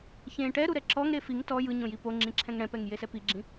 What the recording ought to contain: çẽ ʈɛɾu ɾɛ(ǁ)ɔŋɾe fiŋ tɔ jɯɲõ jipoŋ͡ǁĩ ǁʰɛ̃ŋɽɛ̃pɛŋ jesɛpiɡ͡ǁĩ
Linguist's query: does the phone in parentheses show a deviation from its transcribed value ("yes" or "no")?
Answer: no